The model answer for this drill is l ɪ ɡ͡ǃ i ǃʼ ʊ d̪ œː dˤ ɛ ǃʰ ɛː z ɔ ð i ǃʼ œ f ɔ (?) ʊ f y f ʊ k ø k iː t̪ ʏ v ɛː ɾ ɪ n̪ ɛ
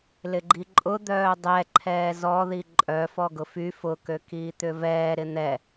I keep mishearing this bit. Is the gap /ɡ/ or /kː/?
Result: ɡ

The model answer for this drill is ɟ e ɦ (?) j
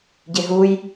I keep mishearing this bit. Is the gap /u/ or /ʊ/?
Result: u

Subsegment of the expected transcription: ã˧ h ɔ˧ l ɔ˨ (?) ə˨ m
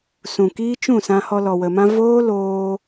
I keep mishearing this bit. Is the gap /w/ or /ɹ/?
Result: w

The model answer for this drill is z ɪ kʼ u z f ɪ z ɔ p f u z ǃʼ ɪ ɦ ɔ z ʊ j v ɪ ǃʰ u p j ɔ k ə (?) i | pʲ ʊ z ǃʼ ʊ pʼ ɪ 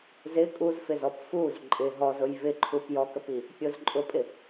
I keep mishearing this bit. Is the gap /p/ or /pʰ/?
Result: p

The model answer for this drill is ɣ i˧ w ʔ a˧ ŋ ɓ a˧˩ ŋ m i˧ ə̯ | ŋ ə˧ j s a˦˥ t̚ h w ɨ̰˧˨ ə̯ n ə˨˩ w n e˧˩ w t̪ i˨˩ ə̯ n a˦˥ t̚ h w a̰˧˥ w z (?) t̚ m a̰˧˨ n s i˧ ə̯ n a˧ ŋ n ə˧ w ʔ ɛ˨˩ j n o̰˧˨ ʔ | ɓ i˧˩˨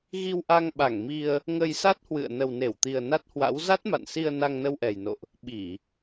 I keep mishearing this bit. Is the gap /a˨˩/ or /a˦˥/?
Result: a˦˥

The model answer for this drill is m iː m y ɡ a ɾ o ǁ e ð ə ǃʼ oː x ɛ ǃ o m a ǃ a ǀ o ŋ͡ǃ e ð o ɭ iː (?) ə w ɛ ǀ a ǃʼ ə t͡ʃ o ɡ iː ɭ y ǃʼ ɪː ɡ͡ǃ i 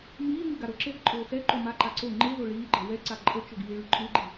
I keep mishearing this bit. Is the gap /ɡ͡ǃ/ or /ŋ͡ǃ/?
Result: ɡ͡ǃ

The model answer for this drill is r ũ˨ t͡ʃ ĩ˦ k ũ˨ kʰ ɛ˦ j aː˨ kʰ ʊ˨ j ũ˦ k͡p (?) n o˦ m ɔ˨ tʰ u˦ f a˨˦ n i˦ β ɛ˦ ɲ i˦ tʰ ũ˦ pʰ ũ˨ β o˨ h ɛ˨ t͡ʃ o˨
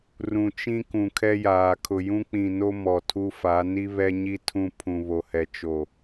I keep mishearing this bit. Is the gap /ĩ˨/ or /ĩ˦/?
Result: ĩ˨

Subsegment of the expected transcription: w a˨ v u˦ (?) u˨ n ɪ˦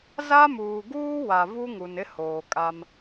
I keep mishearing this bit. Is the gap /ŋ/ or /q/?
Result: ŋ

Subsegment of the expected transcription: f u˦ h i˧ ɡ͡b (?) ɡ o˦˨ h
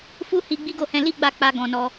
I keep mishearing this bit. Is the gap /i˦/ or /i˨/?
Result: i˦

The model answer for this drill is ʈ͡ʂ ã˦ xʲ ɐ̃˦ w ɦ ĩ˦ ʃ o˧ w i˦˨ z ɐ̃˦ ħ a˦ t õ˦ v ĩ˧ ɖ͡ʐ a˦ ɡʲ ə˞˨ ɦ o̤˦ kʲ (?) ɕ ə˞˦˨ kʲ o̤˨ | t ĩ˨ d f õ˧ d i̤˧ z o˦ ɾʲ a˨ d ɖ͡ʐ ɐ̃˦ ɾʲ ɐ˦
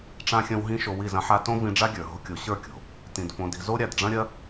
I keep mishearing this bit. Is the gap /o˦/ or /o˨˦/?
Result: o˨˦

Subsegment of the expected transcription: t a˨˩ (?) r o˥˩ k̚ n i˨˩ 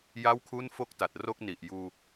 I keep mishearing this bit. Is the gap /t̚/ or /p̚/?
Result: t̚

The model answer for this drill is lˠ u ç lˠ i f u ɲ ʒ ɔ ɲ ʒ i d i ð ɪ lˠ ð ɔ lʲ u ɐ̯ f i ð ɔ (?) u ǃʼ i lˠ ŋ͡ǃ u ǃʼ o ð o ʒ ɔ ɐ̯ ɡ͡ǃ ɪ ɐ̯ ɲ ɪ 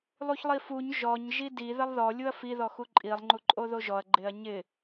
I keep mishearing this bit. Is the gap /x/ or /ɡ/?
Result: x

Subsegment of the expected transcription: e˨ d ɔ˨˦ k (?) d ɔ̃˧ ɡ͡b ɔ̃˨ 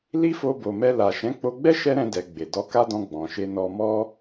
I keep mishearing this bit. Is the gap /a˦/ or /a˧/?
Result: a˦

